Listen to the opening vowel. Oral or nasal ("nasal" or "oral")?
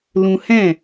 nasal